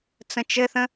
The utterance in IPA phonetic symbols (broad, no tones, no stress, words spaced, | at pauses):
t͡sə̃t͡ʃɘθə̃